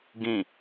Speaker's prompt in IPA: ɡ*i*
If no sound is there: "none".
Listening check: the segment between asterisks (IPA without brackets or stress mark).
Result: ĩ